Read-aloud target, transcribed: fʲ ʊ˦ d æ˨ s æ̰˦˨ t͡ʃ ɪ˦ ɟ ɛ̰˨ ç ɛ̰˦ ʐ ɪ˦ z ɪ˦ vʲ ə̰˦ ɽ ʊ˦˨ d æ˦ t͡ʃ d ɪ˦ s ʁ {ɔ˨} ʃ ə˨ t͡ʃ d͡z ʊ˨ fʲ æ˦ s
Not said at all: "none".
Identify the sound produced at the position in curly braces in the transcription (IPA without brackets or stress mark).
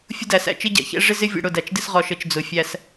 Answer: ɔ˨